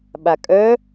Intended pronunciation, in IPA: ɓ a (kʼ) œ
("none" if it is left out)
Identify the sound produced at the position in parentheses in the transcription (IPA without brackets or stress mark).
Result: kʼ